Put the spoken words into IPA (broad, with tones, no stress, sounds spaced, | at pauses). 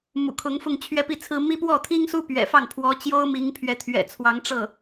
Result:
m ṵ˨˩ kʰ ʊ˧˥ ŋ f ʊ˥˧ ŋ t͡ɕʰ ɥ ɛ˥˧ p i˥˩ t͡sʰ ɹ̩˥ m i˥ p w ɔ˥˩ t̪ʰ i˥ ŋ s u˥ p ɥ ɛ̰˨˩ f ɑ˥˩ ŋ pʰ w ɔ˧˥ t͡ɕ j o˥ ʊ̯ m i˧˥ ŋ pʰ ɥ ɛ˧˥ t̪ʰ ɥ ɛ̰˨˩ t͡sʰ w ɑ˧˥ ŋ ʈ͡ʂ ɤ˥˩